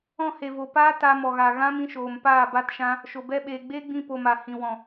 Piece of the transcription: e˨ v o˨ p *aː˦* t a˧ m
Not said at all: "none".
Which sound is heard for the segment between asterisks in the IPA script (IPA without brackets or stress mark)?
aː˦